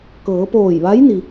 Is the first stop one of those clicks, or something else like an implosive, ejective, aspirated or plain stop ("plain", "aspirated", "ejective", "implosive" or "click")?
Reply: plain